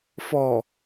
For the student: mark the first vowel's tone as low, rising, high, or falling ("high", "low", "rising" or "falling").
low